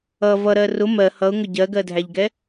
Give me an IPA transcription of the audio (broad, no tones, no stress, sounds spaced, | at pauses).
ʌ v ʌ ɾ ɜ r ʊ m ɜ h ʌ ʊ̯ ŋ ʊ ɟ ɜ ɡ ɜ dʱ æ ʎ ɡ ɛ